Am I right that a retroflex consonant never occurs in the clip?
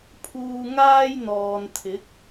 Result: yes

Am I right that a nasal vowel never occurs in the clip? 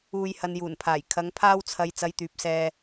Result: yes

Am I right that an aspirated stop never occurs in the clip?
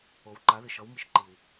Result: yes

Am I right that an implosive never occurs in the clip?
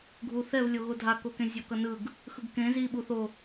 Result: no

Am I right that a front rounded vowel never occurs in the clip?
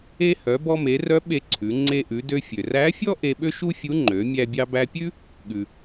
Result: no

